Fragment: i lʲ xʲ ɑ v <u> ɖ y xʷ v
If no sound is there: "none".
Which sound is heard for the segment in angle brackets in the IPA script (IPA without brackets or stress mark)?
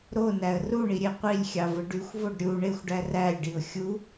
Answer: ɯ